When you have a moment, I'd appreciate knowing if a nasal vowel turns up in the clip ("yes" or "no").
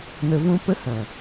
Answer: yes